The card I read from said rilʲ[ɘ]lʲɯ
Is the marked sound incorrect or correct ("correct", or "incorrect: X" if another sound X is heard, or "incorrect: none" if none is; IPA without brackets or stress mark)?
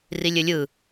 correct